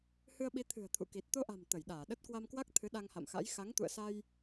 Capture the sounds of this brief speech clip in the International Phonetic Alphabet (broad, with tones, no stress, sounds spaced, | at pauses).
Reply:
h ɨ˧ ə̯ ɓ i˨˦ t̪ʰ ɨ̤˨˩ ə̯ t̪ʰ ṵ˧˨ k i˨˩ t̚ t̪ o˧ ʔ a̤˨˩ m t̪ ə˧˩ j ɗ aː˧˩ ɗ ə˦˥ t̚ k w a˧ m k w a˦˥ k̚ t̪ʰ ɨ˨˦ ɗ a˧ ŋ h a̰˧˨ m x a̰˧˥ j x a˨˦ ŋ t̪ ṵ˧˨ ə̯ s a˧ j